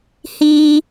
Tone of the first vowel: high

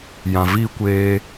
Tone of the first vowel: low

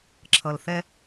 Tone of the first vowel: low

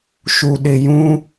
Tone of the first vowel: low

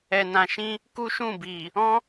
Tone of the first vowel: low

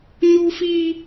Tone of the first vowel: high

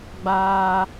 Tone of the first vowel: high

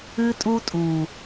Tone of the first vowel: high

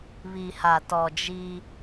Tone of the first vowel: low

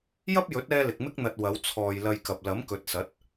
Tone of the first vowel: high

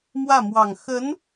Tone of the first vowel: falling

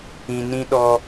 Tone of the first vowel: low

